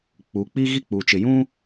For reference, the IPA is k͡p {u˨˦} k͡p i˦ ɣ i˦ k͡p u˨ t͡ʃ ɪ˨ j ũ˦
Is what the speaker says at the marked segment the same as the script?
yes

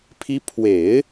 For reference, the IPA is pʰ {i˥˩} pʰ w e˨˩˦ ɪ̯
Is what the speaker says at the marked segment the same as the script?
no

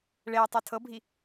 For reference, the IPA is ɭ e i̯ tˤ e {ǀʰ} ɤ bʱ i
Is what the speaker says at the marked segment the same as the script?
no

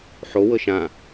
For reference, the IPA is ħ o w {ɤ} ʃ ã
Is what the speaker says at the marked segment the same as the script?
yes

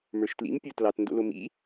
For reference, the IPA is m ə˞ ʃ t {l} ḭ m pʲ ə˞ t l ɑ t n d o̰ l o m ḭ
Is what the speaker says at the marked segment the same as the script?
yes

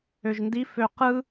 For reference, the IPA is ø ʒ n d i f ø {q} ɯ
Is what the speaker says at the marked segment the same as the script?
yes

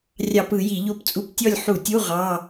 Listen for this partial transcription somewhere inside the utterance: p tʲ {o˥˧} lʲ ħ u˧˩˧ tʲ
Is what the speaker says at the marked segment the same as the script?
no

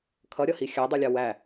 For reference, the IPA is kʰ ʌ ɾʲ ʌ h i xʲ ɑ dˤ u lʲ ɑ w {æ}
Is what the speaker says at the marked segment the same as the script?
yes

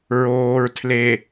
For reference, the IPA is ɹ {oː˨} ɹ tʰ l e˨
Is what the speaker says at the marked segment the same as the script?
yes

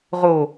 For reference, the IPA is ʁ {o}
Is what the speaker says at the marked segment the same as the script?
yes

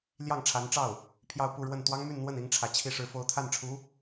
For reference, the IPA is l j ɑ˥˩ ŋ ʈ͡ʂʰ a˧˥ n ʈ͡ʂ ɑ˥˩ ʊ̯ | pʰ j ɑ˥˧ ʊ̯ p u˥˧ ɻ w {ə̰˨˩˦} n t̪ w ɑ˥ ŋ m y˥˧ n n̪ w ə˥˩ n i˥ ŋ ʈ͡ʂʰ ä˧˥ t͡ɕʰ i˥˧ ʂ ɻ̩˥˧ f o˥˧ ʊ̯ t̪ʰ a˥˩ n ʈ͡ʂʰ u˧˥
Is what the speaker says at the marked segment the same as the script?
no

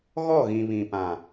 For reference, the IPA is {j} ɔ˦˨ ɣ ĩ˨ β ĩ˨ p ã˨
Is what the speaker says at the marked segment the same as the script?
no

